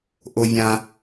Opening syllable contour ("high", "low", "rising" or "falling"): high